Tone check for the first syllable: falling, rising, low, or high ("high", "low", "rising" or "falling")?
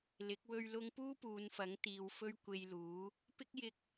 rising